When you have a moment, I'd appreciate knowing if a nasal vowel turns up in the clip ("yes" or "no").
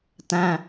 yes